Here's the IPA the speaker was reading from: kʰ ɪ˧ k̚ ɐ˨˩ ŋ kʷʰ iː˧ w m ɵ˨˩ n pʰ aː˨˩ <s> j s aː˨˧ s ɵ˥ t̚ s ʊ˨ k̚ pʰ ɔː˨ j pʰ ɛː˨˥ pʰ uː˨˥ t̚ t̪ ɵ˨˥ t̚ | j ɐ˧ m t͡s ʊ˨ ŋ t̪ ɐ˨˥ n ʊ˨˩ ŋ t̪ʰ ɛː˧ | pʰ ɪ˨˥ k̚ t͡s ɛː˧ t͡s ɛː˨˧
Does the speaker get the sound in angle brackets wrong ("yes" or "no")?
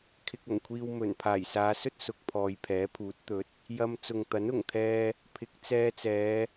yes